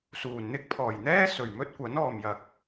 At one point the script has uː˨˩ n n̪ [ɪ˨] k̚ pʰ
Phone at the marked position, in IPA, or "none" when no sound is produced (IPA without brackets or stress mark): ɪ˥